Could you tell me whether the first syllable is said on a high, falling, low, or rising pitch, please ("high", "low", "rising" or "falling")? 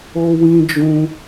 high